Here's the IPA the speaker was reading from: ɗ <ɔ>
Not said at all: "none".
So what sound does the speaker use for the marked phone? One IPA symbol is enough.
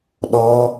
ɔ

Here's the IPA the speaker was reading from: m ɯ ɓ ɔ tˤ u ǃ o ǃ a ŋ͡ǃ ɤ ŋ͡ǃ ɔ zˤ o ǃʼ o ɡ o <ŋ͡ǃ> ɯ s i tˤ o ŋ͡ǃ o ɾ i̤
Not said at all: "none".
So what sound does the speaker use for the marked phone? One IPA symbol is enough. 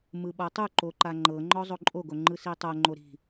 ŋ͡ǃ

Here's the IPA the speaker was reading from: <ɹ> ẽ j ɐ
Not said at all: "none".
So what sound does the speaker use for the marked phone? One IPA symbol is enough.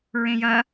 ɹ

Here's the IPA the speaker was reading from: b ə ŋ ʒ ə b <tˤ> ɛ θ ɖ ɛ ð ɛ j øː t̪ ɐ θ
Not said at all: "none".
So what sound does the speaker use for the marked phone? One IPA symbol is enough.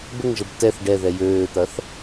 t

